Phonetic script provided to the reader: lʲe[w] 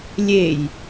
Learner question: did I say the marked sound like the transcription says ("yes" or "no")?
no